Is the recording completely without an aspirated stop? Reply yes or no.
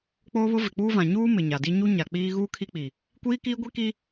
no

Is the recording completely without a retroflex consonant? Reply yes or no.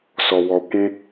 yes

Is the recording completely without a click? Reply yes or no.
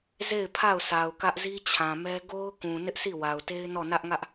yes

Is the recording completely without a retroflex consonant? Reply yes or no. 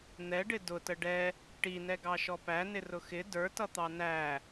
no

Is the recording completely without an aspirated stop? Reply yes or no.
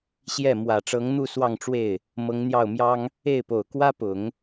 yes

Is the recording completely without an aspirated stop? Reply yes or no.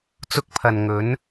no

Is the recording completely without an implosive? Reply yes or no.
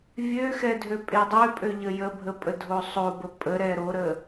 yes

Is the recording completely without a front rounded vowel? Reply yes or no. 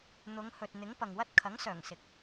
no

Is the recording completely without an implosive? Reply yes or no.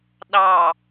no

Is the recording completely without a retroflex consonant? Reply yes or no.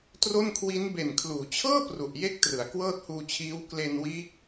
yes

